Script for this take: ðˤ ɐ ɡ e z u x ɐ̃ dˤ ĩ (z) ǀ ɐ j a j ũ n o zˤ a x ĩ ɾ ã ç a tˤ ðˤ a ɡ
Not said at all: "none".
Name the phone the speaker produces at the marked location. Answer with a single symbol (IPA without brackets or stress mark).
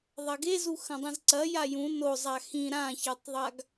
z